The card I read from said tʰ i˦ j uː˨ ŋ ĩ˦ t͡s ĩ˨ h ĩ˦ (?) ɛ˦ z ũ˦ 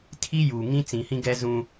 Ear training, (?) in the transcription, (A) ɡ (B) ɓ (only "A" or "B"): A